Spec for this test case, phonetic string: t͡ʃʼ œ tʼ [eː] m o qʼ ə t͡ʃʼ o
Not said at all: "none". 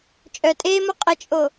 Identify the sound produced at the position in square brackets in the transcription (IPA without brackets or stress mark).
eː